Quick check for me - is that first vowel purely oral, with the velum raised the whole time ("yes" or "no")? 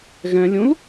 no